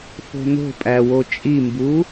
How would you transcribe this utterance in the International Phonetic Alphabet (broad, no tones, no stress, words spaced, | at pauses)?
fo̤no̤pʼæwo t͡ʃʼimbu